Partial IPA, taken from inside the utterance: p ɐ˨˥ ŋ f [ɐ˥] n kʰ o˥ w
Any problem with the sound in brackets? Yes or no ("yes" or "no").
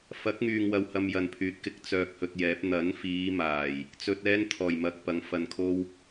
yes